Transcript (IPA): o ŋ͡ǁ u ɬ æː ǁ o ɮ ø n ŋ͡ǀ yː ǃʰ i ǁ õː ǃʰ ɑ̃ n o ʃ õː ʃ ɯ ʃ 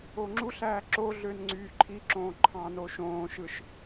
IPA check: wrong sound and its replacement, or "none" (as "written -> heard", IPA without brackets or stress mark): none